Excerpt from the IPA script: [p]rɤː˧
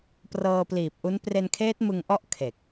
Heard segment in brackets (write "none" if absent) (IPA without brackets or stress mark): p